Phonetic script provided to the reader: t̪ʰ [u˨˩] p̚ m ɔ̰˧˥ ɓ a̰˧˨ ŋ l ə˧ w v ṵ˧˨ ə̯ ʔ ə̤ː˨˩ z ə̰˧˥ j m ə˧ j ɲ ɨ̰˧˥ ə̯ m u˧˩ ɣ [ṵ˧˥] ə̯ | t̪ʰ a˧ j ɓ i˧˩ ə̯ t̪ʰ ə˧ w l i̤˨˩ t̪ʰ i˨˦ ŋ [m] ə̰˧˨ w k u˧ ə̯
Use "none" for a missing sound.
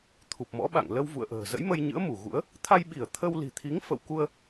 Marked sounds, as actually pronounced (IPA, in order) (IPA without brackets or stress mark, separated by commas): u˨˩, ṵ˧˥, f